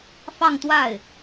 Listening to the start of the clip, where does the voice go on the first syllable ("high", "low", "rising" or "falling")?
falling